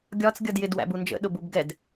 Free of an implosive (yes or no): no